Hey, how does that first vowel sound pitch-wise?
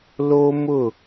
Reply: high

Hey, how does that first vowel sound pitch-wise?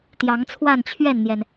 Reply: rising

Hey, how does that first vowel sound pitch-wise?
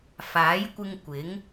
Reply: rising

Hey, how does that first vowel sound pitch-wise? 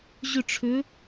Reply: falling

